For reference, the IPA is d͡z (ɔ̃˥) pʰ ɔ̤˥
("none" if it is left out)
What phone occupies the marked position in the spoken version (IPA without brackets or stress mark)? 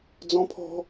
ɔ̃˥